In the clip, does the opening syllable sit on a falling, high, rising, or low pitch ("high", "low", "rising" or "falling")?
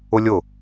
high